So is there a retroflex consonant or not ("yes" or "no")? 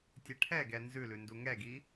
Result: yes